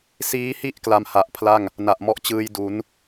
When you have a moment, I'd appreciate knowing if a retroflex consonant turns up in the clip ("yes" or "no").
no